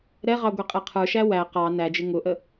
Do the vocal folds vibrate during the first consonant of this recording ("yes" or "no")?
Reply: yes